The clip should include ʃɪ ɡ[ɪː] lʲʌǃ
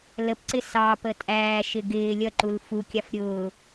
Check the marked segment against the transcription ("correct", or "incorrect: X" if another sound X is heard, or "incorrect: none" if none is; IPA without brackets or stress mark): correct